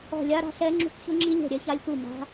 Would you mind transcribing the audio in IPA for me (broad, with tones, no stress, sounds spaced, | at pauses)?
ɔ̤˦˨ lʲ a˦˥ ɾ a̤˦˥ ɬ ɛ˦˥ ŋ͡ǁ ṳ˦˥ k ç ʊ˦˥ ŋ͡ǁ i˦˥ lʲ ɛ̤˦˨ ɾʲ ɛ˦˥ ç a˦˥ lʲ k u˦˨ m a̤˦˥